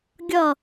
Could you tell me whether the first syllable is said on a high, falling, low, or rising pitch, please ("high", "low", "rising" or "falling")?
falling